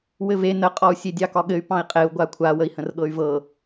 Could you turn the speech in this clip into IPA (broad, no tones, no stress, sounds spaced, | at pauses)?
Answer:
w ɘ v e n ə qʼ ɔ u̯ sʲ e dʲ ɑ k ɒ ɠ ɘ y̯ p ɑ̃ i̯ qʼ e u̯ ɡʷ a kʷʰ a w ə i̯ h ə̃ r ɠ ɤ y̯ v ɤ